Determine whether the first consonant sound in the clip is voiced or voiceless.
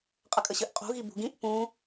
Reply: voiceless